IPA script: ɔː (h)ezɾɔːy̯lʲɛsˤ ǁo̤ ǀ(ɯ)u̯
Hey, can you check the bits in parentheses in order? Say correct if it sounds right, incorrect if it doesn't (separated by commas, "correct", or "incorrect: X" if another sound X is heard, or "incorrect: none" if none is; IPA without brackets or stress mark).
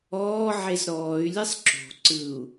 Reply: incorrect: ʕ, correct